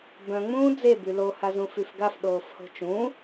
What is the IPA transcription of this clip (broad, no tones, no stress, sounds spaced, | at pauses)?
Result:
b œ̃ ŋ͡m ũː d͡z e b y l o h a z ũ f y f ɡ a f ɗ oː f h o̤ t͡ʃ ũ